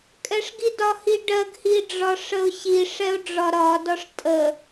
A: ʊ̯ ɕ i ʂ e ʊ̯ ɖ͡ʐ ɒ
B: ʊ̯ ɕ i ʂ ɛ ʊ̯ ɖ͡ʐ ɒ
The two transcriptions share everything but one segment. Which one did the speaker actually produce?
B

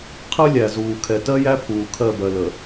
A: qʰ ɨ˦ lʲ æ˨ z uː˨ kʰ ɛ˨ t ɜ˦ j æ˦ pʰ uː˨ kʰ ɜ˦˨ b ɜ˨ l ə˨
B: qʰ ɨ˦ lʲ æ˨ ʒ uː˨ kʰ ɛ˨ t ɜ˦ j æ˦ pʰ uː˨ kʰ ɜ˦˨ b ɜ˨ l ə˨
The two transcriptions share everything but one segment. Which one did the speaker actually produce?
A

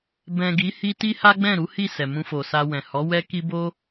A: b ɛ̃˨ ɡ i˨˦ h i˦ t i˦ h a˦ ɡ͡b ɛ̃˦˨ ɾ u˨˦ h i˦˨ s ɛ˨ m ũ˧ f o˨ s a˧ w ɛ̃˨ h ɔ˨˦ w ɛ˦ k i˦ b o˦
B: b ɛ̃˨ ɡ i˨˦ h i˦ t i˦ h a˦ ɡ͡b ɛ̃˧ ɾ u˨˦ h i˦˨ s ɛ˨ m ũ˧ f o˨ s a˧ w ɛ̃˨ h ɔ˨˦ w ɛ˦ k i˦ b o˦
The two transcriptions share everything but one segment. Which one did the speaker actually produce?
A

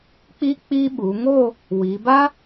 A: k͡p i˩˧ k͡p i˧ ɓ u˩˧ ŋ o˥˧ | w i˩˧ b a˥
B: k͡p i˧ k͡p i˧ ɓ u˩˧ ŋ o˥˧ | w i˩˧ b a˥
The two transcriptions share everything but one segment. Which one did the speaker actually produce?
B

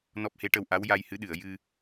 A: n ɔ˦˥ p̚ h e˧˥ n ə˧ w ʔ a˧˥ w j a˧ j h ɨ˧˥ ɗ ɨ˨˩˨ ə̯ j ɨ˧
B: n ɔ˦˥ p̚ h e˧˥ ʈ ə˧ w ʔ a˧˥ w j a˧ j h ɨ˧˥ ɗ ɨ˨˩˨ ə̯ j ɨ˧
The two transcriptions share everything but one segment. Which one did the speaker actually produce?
B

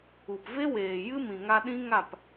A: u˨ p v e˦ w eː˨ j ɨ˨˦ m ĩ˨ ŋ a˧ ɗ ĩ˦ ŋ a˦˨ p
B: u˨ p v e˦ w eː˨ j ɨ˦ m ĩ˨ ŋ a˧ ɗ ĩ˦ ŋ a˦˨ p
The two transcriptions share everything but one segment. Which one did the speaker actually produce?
B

